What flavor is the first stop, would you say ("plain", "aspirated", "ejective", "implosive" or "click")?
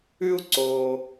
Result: click